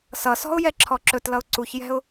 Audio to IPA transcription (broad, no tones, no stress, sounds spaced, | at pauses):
s ʌ s ɔ̤ ʊ̯ j ɛ ǁʰ ɔ ǁ ɵ t l ʌ ʊ̯ ǀ u ç j ɛ̤ ʊ̯